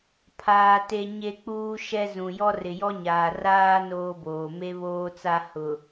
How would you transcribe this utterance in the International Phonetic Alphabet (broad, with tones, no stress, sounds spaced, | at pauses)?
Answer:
pʰ aː˨ t e˨ ɲ e˦ k͡p uː˦ ʃ ɛ˦ z ũ˨ j ɔ˦ r ɪ˨ j ɔ˦ ɲ aː˨ r aː˦ n oː˦ b oː˨ m e˦ β oː˦ t͡s a˦ h ʊ˨